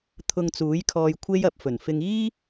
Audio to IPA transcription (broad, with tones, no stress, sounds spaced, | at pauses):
t̪ʰ ʊ˧ ŋ t͡s uː˨˥ j kʰ ɔː˧ j kʷʰ e˥ j ɐ˧ p̚ f ɵ˨˩ n f ɪ˧ ŋ iː˥